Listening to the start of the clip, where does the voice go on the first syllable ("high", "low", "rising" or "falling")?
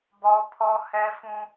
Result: high